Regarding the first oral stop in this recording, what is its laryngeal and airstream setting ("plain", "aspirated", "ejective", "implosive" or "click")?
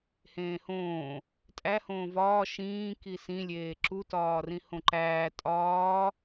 ejective